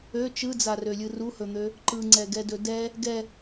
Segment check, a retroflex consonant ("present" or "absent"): absent